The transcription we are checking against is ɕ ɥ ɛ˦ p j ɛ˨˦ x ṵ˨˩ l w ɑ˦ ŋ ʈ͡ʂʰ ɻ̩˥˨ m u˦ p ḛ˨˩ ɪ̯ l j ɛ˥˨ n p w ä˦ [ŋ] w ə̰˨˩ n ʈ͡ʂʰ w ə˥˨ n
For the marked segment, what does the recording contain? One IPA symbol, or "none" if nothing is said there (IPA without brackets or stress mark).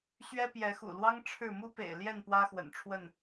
x